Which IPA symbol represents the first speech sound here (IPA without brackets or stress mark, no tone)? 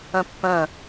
œ̃